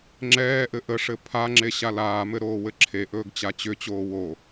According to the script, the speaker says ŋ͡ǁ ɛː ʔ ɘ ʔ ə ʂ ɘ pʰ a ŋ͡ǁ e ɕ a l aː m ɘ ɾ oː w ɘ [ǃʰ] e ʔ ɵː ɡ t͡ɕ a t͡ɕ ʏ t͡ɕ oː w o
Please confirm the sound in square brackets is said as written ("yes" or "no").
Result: no